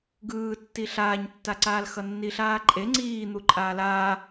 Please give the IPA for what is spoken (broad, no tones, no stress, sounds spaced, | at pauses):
ɡ ɯː tː i ɬ aː ɲ tː a ǀ aː l x ʌ nː i ɬ aː ǃʼ e ŋ͡ǀ iː n̪ u ǃʼ aː l aː